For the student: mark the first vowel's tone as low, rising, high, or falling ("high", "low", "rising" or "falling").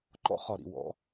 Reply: high